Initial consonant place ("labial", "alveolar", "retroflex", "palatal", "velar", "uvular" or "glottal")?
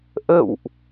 glottal